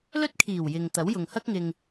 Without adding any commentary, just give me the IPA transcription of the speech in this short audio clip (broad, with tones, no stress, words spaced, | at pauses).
lɵ˥t̚kʰiː˨˩w jɪ˨ŋt̪ɐ˨˥w jʊ˨ŋhɐ˥k̚ŋɪ˧ŋ